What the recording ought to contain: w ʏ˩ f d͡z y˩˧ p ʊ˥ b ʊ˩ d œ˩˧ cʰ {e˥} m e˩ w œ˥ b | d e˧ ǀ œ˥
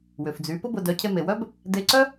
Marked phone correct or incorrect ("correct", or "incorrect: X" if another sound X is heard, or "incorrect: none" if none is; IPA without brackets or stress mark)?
incorrect: e˧